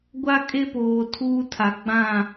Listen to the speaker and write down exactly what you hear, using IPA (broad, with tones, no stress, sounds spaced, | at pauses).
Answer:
ɡʷ a˦ kʼ e˦ p oː˨ tʰ uː˦ tʰ a˨ ɡ͡b ã˦˨